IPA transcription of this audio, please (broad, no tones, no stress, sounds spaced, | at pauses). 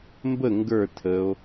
m b ə ŋ ɡ ə˞ tʰ ə o̯